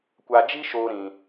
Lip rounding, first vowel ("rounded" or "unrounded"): unrounded